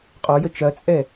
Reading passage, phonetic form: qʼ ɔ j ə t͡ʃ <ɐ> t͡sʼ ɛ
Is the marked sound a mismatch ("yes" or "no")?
no